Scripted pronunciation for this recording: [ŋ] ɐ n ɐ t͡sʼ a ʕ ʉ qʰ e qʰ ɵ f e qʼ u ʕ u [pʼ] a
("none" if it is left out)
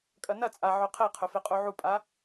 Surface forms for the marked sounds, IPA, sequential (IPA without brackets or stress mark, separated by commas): kʼ, pʼ